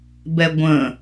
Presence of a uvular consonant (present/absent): absent